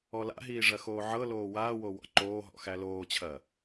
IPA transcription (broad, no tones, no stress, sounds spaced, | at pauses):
ɔ l a̰ ɦ iː ʐ ɐ x oː ʕ ɤ l oː w aː w o w ɔ̰ ǃ oː ɦ ɔ̰ x æ l oː t͡ɕʰ ɐ